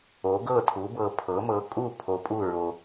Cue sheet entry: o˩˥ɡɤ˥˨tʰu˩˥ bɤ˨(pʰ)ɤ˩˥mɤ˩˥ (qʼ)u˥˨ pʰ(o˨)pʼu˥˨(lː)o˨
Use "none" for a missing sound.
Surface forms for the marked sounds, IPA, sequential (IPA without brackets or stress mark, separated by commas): pʰ, kʼ, o˨, ɹ